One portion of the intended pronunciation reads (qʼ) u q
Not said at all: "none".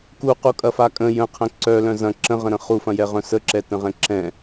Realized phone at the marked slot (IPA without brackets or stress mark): k